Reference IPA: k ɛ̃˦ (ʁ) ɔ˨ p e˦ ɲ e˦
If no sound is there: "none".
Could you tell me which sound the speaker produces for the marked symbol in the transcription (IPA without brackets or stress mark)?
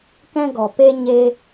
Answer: ɡ